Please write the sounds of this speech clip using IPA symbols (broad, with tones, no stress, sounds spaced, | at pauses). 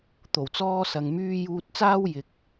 t̪ o˨˩ w t͡s ɔː˧ s ɐ˨ ŋ m yː˧ j uː˧ t̚ t͡s aː˥ w j ɪ˨ k̚